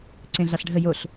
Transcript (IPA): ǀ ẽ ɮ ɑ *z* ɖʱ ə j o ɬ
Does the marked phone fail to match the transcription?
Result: yes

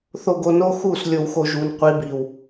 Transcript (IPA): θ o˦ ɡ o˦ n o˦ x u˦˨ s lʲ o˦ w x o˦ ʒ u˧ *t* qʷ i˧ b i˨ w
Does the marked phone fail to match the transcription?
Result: yes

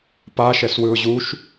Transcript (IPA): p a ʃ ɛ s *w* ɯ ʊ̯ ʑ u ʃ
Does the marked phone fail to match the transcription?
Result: no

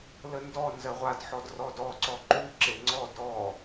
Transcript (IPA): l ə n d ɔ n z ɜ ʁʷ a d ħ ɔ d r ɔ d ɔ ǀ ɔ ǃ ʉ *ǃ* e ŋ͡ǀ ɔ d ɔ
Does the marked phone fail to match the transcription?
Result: yes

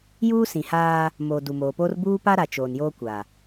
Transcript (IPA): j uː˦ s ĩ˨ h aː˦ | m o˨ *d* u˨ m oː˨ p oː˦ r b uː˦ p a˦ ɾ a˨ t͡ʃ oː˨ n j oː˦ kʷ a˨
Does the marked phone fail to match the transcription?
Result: no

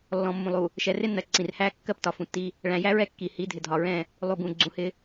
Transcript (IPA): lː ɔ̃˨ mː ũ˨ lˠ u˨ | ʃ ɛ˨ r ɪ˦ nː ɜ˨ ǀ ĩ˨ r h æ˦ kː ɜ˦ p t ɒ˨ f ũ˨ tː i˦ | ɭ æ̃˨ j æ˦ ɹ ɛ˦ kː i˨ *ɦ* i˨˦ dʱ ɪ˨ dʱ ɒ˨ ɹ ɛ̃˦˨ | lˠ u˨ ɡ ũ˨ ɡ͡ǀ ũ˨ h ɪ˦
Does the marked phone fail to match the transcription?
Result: yes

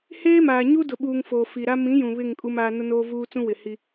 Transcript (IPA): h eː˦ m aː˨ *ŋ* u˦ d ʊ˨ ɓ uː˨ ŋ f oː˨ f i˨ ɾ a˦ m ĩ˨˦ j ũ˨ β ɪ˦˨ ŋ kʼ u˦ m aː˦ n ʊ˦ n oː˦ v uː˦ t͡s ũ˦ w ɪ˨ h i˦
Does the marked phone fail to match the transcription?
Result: yes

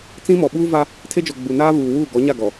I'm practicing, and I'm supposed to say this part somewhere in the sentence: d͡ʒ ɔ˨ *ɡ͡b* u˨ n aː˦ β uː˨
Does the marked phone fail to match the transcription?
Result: no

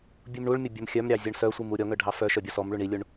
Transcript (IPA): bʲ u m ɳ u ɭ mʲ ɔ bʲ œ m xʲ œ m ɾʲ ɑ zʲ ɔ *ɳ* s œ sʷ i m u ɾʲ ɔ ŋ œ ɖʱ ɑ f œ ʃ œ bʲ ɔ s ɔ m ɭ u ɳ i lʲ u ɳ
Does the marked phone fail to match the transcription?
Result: no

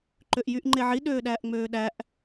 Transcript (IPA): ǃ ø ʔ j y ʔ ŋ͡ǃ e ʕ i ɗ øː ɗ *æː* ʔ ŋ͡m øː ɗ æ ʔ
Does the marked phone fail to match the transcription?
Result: no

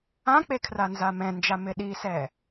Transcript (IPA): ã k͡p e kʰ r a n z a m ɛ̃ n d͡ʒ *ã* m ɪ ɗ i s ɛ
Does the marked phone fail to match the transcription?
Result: yes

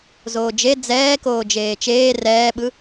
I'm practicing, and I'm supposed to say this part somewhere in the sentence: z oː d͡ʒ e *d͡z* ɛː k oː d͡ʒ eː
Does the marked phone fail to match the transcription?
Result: no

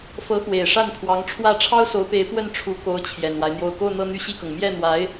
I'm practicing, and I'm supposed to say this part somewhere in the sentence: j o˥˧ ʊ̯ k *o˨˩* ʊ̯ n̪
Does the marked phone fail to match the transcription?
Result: yes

